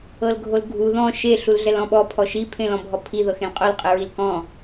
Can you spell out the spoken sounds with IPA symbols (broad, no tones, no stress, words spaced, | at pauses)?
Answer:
ɤlɡʱolɡʱu ðɔ̃ ʃe ɬulɮɛlɔ̃ɓɔ pʰɔʃi pʰẽlɔ̃bʱɔpʰi ðɤxẽlqʼol qʼɯɹilkɔ̃